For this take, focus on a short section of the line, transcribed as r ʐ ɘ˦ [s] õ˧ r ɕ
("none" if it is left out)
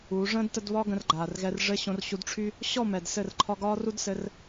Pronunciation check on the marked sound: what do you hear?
ɕ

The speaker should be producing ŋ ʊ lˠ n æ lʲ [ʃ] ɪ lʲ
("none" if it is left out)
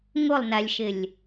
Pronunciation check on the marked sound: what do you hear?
ʃ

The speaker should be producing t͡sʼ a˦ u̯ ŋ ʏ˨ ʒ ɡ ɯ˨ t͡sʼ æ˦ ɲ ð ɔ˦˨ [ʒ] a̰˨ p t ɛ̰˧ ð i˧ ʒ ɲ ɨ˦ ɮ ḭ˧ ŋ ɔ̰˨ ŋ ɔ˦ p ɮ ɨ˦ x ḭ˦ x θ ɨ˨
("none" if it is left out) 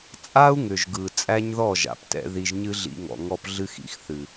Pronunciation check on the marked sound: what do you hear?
ʒ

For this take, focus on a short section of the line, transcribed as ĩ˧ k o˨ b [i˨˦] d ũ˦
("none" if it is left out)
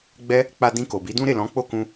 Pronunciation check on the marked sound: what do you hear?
i˨˦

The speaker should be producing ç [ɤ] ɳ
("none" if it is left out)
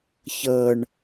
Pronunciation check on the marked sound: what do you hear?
ɤ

